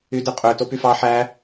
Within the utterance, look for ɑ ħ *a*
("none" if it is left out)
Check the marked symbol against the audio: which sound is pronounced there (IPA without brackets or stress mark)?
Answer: æ